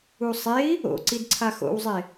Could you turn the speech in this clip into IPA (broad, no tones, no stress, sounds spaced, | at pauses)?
u sˤ e i̯ | o̰ ǀ i d ǀʰ a x o̰ w zˤ e